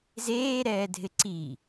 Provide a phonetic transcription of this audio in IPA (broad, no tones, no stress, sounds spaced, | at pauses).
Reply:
z eː ɾ ɛː dʱ ɪ ǀ i